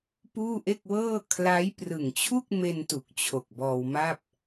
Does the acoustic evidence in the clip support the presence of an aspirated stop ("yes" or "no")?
yes